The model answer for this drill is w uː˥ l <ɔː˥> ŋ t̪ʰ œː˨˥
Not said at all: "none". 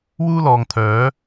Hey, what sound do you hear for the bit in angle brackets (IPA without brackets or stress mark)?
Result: ɔː˨